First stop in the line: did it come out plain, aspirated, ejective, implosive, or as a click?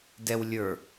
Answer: plain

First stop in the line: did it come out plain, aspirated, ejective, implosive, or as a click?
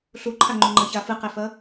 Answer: click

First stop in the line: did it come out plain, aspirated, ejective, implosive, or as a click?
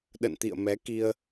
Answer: implosive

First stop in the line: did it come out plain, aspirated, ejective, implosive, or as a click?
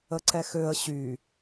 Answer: click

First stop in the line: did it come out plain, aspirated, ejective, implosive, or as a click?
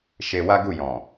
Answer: plain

